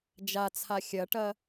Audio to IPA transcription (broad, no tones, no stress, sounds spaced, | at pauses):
d͡ʒ a t͡sʰ a xʲ ɐ ʈ ɐ